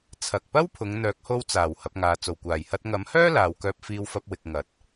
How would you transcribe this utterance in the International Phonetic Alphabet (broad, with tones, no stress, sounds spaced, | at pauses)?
t͡sʰ ɐ˨ k̚ p ɐ˥ w pʰ ʊ˨˧ ŋ n̪ œː˨˥ k̚ h o˧ w t͡s aː˨˩ w h ɐ˨˥ p̚ ŋ aː˨ t͡s o˨˩ w kʷ aː˨˩ j h ɐ˧ t̚ ŋ ɐ˨˥ m h œː˥ l aː˨ w k œː˧ p̚ f iː˧ w f ɐ˧ p̚ w ɪ˨ k̚ ŋ ɐ˨˥ t̚